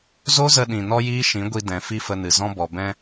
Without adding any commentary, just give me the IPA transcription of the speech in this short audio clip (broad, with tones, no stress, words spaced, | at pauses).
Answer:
zo˦zə˧ɗĩ˨ nɔ˦jiː˦ʃĩ˨˦ɡʷi˧ dɛ̃˨ fi˦fə˧nɨ˨ zɔ̃˧bɔ˨bɛ̃˧